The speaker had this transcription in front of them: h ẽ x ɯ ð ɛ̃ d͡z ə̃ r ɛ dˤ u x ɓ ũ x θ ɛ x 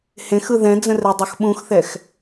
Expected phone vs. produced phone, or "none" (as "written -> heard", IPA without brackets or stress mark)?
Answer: none